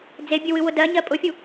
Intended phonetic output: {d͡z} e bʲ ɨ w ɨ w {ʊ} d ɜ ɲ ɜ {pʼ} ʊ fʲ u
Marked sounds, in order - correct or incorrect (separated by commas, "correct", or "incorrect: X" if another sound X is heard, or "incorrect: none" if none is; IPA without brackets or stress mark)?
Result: correct, correct, correct